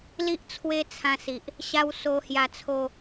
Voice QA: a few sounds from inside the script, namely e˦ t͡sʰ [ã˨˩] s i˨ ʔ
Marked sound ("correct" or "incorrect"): incorrect